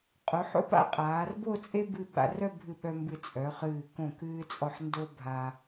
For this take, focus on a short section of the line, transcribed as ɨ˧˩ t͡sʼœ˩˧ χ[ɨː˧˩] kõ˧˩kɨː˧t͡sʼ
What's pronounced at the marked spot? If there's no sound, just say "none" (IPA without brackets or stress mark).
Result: ɨː˧˩